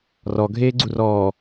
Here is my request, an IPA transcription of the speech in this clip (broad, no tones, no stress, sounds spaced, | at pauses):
r ɔ ɡʱ eː ɡ͡ǀ u r ɔː